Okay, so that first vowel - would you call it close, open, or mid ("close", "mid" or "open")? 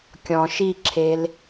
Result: mid